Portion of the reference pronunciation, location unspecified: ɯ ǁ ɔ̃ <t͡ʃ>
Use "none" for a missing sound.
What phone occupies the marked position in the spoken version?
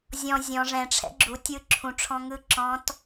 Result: t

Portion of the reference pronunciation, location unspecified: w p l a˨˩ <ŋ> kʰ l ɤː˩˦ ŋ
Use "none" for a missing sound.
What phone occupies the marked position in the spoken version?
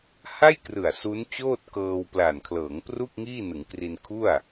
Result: n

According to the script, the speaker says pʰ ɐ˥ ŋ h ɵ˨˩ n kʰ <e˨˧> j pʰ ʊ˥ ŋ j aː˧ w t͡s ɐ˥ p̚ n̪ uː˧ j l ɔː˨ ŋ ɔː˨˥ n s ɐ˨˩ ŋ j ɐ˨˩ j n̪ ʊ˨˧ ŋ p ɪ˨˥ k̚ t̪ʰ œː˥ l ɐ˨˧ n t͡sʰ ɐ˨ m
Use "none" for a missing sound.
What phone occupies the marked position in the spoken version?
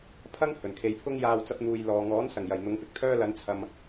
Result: e˨˧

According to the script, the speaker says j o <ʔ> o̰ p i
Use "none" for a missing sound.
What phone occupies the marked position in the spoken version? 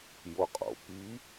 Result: qʼ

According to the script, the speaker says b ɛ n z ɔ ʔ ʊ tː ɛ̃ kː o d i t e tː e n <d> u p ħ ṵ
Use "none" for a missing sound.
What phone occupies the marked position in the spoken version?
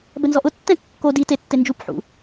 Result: d͡ʒ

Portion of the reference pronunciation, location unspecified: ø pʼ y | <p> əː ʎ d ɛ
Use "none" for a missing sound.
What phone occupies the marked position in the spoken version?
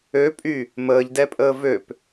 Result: m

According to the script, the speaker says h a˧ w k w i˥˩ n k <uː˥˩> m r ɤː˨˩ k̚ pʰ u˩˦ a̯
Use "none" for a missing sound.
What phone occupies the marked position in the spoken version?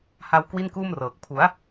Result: uː˥˩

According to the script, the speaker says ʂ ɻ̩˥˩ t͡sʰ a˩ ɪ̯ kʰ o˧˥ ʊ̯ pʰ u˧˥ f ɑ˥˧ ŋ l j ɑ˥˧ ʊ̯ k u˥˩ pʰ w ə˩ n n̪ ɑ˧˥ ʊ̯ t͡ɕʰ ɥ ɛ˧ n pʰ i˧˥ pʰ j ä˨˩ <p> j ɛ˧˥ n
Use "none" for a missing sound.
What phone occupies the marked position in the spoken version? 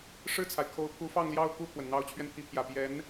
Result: p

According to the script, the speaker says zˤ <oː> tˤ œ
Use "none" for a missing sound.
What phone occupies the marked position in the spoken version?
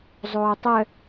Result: oː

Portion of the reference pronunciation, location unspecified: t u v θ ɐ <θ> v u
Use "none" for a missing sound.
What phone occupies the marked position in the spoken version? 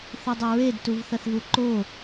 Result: θ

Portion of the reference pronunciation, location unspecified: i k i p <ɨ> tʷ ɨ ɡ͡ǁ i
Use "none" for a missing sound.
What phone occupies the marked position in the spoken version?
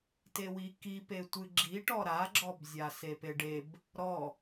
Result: e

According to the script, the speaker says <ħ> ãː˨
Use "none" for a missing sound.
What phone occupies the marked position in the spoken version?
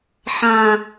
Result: ħ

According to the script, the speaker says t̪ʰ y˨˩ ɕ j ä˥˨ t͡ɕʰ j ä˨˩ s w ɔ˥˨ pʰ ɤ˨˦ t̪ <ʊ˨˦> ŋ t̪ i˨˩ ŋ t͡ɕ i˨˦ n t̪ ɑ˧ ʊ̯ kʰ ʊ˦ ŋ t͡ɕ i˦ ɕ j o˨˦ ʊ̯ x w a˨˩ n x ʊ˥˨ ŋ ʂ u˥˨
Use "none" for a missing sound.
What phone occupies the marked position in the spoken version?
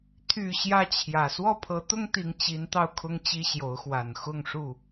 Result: ʊ˦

